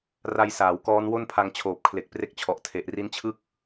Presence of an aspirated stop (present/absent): present